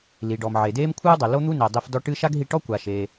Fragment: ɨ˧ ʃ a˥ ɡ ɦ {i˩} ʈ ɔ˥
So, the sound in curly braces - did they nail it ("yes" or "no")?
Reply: no